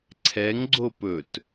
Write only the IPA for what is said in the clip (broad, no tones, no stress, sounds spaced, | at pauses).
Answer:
ǀʰ ɛ ŋ ɡ͡ǀ o p ɵ t